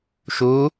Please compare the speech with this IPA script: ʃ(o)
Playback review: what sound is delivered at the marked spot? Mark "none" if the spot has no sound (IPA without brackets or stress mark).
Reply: u